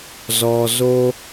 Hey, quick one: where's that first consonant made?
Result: tongue tip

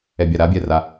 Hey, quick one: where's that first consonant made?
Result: lips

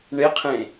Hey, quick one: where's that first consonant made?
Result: retroflex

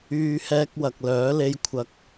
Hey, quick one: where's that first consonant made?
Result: throat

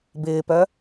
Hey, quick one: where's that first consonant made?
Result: lips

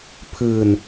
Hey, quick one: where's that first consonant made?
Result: lips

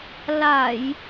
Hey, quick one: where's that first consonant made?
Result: tongue tip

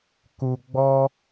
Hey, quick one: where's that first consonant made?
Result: velum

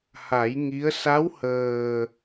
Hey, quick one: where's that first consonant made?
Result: throat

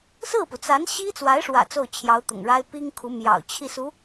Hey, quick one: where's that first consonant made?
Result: tongue tip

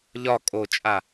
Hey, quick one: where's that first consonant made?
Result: palate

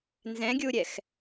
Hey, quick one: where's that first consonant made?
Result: tongue tip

